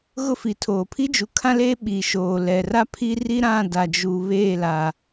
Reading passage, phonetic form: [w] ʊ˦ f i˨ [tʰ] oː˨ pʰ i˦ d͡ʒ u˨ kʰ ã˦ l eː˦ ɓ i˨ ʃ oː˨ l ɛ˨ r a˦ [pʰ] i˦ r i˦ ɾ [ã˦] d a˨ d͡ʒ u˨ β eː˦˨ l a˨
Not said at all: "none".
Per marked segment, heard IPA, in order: ɣ, tʰ, pʰ, ã˦˨

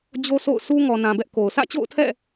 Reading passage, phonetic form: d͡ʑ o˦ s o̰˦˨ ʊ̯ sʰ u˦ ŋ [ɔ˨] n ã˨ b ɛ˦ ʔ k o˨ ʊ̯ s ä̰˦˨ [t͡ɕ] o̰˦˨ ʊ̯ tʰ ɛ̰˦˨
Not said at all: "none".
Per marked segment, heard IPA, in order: ɔ˨, t͡ɕ

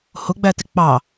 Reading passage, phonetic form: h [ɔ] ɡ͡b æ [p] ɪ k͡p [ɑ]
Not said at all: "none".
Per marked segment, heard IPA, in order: ʊ, t, ɑ

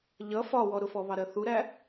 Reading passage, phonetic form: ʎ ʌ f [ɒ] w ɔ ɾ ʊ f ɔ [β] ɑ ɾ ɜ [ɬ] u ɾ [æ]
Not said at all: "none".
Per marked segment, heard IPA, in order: ɒ, β, θ, æ

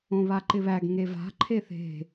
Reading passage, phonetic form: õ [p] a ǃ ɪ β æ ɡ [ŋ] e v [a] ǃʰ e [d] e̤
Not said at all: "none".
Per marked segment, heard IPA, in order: β, ŋ, a̤, θ

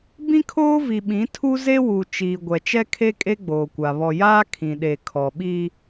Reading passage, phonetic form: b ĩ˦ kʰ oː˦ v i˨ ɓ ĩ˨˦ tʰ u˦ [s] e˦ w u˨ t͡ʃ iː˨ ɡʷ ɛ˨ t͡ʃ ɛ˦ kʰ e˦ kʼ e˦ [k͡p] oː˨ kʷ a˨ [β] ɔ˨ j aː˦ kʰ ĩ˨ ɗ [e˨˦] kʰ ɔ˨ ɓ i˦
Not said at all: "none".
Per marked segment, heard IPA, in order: z, ɡ͡b, β, e˨

